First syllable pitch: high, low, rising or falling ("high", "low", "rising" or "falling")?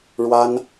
high